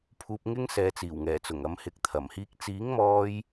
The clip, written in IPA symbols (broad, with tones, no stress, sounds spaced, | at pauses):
pʰ uː˨ p̚ ŋ ɪ˥ ŋ s ɛː˨ t͡s iː˨˩ w ŋ ɛː˨˩ t͡s ʊ˨˩ ŋ ɐ˨˧ m h ɪ˨˥ k̚ t̪ʰ ɐ˨˩ m h iː˥ k̚ t͡s iː˨˥ ŋ m ɔː˧ j